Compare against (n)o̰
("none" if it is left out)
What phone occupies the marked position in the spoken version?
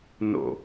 n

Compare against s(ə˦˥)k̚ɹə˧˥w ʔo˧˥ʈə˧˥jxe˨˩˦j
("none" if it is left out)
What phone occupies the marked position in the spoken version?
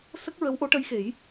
ə˦˥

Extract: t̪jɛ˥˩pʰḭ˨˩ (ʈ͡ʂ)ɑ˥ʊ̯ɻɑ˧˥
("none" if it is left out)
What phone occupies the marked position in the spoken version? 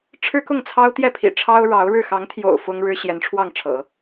ʈ͡ʂʰ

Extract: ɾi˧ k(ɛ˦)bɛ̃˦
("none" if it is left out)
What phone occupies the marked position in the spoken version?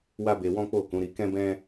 ɛ̃˦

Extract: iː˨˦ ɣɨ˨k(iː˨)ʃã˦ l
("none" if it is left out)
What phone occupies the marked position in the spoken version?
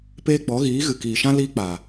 iː˨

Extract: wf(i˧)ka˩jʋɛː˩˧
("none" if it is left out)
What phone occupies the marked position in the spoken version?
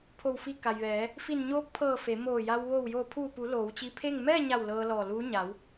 i˧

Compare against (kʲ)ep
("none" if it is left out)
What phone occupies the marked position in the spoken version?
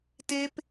t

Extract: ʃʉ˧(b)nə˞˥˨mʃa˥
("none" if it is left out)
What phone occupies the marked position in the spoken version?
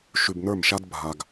b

